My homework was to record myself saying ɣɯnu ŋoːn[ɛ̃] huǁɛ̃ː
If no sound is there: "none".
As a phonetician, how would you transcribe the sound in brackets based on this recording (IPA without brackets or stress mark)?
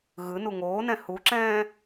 ɛ̃